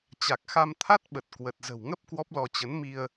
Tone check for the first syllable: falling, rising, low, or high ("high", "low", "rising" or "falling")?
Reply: low